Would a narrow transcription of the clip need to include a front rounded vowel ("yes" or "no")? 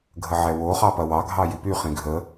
yes